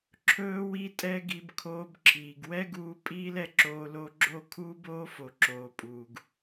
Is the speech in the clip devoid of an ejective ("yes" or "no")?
no